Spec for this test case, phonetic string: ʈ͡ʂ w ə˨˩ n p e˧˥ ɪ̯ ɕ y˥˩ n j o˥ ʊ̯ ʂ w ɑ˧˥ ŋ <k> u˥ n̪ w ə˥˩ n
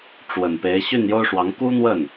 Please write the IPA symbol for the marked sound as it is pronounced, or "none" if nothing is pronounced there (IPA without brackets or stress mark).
k